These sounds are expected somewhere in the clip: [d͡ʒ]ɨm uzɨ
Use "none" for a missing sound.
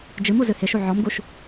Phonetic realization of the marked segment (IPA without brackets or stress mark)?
d͡ʒ